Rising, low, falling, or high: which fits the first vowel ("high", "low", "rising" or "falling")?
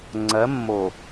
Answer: rising